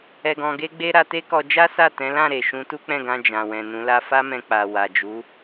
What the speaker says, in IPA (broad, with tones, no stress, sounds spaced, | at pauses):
ɛ˧ ɡ ɔ̃˧ ɡ e˦ ɡ͡b e˦ ɾ a˧ t e˦ k ɔ˧ d͡ʒ a˦ s a˦˨ t ɛ̃˨˦ l ã˦˨ ɾ e˨ ʃ ũ˨˦ t u˦ k͡p ɛ̃˦˨ ɡ ã˧ d͡ʒ ã˨ w ɛ̃˨ n ũ˨˦ l a˦ f a˦ m ɛ̃˧ k͡p a˨ w a˨ d͡ʒ u˨˦